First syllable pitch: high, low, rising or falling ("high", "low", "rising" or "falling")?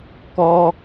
high